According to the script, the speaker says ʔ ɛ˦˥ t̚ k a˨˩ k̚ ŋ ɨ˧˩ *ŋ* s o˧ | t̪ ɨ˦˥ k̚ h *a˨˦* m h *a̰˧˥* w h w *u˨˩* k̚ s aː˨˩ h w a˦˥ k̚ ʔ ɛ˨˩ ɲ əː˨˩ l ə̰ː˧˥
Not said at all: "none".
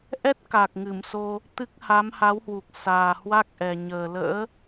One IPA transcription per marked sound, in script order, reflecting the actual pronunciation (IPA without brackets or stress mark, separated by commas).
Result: m, a˨˦, a˨˦, u˨˩